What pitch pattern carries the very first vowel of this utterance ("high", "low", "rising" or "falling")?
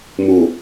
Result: low